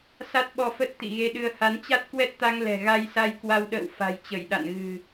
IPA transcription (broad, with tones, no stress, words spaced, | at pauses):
sa˦˥t̚ɓɔ˧fə˦˥t̚ t̪ḭ˧˨ɣe˧ɗɨ˧ə̯ ha˨˦nt͡ɕa˦˥t̚ kwɛ˦˥t̚t̪a˧ŋ lɛ̤˨˩ ɣa˧jsa˧jkwa˧wɗə̰ː˧˨w fa̤˨˩jt͡ɕə˧˩jɗa̰˧˨nɣɨ̤˨˩